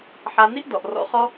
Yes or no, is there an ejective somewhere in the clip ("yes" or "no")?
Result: no